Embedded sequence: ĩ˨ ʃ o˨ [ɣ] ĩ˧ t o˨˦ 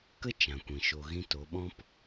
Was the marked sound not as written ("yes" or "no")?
no